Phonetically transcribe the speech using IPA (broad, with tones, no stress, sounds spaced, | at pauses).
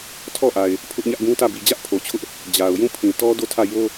tʰ ɔ˦˨ ʔ a˨ ɪ̯ | pʰ ʊ˦ ʔ ɲ ä˦ ʔ ɡ ũ˦ t ä˦˨ b i˨ d͡ʑ ä˦ ʔ pʰ o˨ t͡ɕʰ ʊ˦ ʔ | d͡ʑ a˨ ʊ̯ j ũ˦˨ pʰ ĩ˨ t ɔ˦ d o˦˨ tʰ ä˦˨ j o˦